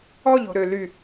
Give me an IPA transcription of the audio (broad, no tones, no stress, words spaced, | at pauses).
ɔʎo̤ ɾøly